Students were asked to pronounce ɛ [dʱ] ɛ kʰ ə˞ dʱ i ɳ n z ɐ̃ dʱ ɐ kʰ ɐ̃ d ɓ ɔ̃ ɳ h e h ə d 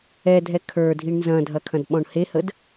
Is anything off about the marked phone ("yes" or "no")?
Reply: no